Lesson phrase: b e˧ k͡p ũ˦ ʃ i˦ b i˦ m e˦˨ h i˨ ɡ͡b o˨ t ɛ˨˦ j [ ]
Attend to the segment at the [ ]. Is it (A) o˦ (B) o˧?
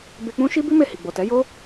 A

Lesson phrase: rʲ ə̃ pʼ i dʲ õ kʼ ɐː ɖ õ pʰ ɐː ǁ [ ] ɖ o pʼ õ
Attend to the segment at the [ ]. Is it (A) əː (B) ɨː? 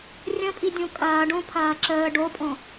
A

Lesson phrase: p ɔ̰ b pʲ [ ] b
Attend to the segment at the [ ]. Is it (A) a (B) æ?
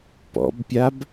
A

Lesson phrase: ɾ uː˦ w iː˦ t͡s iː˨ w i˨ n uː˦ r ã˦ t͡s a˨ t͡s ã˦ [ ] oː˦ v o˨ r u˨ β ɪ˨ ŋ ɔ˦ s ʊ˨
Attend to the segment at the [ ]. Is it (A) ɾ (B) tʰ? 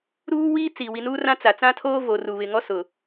B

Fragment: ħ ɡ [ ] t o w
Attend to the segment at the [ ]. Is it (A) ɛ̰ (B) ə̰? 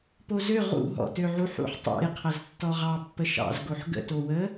B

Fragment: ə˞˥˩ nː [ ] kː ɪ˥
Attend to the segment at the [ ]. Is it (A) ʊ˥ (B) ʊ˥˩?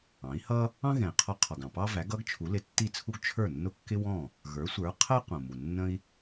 B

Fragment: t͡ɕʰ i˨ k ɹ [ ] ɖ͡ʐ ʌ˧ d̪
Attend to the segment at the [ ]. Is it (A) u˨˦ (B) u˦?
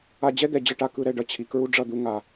B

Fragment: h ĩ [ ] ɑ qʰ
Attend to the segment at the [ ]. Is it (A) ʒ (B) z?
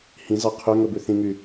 B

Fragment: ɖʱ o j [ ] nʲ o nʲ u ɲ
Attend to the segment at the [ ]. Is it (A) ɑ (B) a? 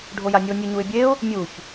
B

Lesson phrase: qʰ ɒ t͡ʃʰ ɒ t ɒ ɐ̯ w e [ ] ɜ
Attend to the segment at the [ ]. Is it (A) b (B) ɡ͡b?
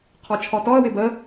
A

